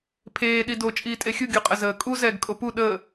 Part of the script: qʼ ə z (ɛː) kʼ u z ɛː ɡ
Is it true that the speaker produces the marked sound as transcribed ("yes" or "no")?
no